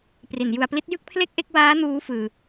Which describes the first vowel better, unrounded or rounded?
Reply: unrounded